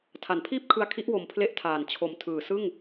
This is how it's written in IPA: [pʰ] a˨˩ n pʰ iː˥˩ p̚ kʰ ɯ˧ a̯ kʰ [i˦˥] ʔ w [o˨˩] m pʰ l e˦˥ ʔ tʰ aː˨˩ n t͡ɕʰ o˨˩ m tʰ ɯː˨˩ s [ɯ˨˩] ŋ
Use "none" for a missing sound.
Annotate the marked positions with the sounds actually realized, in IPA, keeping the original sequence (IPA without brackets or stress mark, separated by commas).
tʰ, i˦˥, o˨˩, ɯ˥˩